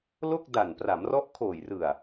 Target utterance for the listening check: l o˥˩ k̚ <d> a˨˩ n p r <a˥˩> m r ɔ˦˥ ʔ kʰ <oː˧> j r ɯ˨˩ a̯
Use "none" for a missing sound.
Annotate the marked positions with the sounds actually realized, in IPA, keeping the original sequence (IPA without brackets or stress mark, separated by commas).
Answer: d, a˩˦, oː˨˩